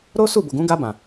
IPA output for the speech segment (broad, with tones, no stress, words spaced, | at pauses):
ɾo˦su˦˨bo˨ɡũ˨˦ ɡa˧bã˨